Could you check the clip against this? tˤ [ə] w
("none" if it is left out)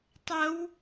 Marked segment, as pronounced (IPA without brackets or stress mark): ə